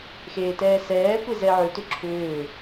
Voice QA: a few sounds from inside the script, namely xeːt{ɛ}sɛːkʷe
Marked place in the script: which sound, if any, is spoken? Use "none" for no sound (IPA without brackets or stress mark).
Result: ɛː